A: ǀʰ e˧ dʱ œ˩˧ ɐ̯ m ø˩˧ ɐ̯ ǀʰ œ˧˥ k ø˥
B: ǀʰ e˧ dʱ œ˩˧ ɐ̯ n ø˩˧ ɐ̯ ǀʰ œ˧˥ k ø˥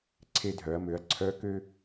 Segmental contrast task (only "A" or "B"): A